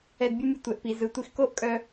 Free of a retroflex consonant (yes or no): yes